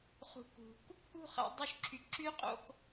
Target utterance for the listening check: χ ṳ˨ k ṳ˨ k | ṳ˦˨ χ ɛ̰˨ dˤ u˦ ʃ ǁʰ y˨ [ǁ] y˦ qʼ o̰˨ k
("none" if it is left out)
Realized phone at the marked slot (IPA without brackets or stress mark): ǁ